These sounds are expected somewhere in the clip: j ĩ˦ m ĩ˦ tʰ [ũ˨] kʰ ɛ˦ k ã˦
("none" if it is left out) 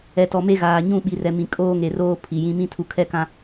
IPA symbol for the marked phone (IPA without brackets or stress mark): u˨